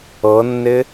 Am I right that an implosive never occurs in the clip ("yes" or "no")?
yes